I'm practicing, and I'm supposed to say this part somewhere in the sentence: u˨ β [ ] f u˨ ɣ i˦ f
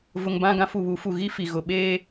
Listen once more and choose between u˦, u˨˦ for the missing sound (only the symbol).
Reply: u˨˦